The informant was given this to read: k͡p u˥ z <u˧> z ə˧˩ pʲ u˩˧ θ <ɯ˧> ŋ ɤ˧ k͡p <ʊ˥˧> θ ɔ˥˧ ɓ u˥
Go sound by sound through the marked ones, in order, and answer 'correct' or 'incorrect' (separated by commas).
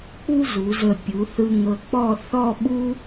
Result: incorrect, correct, incorrect